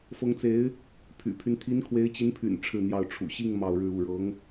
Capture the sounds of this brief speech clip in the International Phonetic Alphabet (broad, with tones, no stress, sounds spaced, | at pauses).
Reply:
f ɤ˧˥ ŋ t͡s e˧˥ ɪ̯ | pʰ y̰˨˩ pʰ y˦ n t̪ʰ i˧˥ n kʰ w e˧˥ ɪ̯ t͡ɕ i˧˥ n pʰ y̰˨˩ n ʈ͡ʂʰ ɻ̩˥˧ n̪ j ɑ˥˩ ʊ̯ ʈ͡ʂʰ ṵ˨˩ ɕ i˥˧ ŋ m ɑ˥˧ ʊ̯ ɻ ɻ̩˥˧ u˥˩ ɻ ɤ˧˥ ŋ